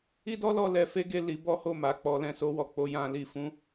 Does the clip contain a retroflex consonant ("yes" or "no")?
no